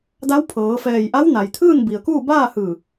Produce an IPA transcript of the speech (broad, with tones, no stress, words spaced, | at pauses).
da˧˥wpʰɤː˩˧fɛː˧˩j ʔa˧˥w na˩jt̪ʰɯː˥˨nbi˩ə̯kuː˥˨ baː˥˨hɯː˧˩